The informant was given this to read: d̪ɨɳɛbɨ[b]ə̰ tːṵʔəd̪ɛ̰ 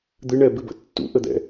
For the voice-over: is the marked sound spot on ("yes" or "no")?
yes